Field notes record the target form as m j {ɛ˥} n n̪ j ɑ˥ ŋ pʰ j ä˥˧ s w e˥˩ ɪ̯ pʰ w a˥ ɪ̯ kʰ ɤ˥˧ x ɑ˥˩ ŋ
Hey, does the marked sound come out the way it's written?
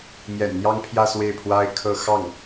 no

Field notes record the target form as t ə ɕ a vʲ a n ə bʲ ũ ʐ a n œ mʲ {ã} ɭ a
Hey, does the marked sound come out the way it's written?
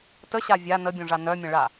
no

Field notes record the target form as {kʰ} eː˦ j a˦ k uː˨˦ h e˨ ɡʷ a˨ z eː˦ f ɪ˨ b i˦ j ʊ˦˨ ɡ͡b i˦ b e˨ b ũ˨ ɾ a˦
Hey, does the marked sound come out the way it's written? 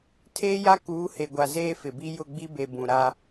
no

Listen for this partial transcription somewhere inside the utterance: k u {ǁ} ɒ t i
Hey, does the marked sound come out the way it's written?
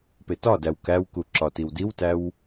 yes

